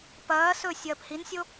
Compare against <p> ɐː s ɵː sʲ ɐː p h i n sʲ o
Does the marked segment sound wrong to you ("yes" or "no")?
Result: no